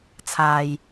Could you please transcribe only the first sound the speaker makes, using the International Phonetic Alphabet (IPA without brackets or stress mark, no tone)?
t͡sʰ